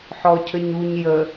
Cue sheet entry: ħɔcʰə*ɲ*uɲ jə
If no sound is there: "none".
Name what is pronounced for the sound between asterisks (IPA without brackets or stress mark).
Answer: ɲ